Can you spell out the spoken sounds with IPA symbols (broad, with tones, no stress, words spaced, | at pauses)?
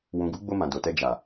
wũ˨ɡu˨˦ɡ͡bo˧ mã˨do˨tɛ˧ d͡ʒa˨